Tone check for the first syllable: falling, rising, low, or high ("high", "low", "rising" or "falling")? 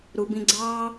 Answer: low